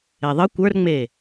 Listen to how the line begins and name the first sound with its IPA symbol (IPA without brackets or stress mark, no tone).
e